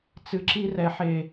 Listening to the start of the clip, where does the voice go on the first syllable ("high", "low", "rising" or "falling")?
low